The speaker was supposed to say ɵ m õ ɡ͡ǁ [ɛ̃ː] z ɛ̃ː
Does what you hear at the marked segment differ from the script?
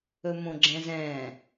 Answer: yes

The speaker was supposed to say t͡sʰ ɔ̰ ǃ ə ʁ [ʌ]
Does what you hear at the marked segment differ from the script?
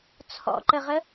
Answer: yes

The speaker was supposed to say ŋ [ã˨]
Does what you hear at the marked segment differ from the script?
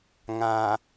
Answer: no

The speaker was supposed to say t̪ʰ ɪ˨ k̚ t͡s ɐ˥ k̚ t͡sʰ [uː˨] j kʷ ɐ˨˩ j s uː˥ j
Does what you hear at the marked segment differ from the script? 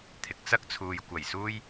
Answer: no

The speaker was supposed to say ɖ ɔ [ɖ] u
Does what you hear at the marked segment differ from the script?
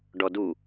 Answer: yes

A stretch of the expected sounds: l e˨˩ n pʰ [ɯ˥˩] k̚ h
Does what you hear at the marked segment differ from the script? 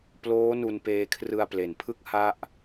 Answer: no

